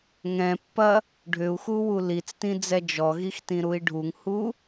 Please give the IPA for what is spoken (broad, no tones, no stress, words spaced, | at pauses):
ŋɛ̃pːɐ | ɖʱʏu̯xuwu lit͡stĩd͡zɛ d͡ʒɔɣixtĩɾui̯ ɖʱuŋhu